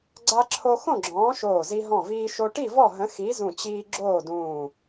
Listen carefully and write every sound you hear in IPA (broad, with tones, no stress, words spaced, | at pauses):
ɡ͡ǀa˧ǁʰo˧ xõ˥˨ɡ͡ǁɔ̃ː˨˥ʃoː˧˩zi˧ ɦɔ̃˧˩viː˧ ʃo˧ ʈi˥˨vɔ˥˨ɦə̃˨˥ xi˨˥zũ˧˩t͡ɕiː˧ ɡ͡ǁoː˥˨dũː˧˩